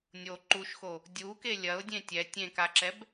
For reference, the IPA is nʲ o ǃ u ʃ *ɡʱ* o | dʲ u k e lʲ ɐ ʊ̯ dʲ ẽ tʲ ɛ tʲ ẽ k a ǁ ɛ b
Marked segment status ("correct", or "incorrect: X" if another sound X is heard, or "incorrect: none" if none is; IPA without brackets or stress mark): incorrect: x